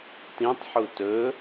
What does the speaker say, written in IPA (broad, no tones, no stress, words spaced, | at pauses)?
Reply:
tĩtˤħu tɵ